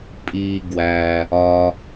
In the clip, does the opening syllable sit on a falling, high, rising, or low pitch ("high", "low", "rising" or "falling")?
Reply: low